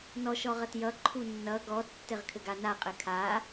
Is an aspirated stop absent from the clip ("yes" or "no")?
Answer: no